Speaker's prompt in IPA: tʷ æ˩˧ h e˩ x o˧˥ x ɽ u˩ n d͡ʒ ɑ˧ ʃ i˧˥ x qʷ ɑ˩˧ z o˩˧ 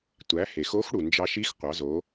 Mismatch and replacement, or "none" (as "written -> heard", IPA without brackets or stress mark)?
none